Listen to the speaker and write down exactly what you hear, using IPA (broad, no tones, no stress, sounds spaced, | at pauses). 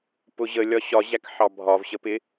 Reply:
p ʊ ʑ ə lʲ ɒ ɕ ɒ ʑ æ k ħ ɑ bʱ ɒ v ɕ ə p ɪ